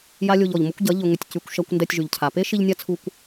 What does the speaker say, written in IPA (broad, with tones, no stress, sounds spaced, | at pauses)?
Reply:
j a˦ lʲ o˧ ʎ ɔ˨ ʎ m ʊ˦ kʷ ɟ ɐ˨˦ ʎ ʊ˨ ŋ ʏ˨ tʲ c y˨ kʷ ʃ ɐ˧ kʷ n d ɛ˧ tʲ ʒ y˨ ʎ cʰ a˨ p e˦ ʃ i˧ ʎ nʲ a˦ t͡sʰ u˧ kʷ